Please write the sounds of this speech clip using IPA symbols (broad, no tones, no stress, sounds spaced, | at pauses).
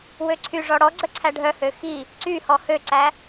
w ø ǀʰ y ʐ ɔ ɽ ɔ ɡ͡ǀ œ ǀʰ æ ɖʱ œ h ø x i | ǀ y h ɔ h ø ǀ æ